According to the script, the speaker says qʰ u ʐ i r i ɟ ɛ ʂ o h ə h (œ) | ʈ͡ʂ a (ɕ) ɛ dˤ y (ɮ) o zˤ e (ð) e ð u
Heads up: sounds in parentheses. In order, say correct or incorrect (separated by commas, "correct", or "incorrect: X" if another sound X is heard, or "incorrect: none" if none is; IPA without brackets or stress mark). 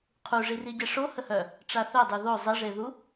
correct, incorrect: θ, incorrect: ð, incorrect: ʐ